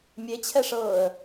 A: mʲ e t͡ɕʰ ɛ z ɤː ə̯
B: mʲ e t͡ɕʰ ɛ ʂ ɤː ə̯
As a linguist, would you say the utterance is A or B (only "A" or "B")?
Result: B